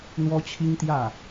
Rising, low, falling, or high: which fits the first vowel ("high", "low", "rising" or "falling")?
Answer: high